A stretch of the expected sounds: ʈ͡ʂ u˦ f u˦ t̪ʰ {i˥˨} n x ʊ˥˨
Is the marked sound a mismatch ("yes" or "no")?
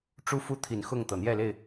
yes